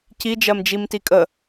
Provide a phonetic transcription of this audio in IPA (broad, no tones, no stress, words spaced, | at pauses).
ci d͡ʒɜmd͡ʒimtikʼə